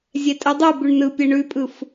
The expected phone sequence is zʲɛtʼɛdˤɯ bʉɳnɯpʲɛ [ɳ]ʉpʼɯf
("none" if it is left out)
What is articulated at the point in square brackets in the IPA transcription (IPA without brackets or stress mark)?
ɳ